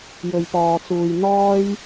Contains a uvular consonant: no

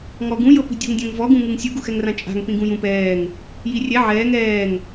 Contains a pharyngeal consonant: yes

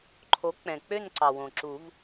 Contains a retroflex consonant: no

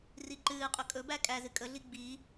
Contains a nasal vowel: no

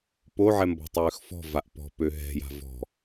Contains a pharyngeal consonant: yes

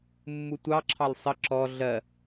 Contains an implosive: no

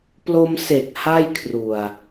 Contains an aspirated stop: yes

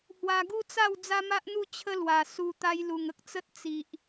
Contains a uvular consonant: no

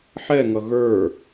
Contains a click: no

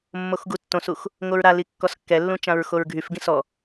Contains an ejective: no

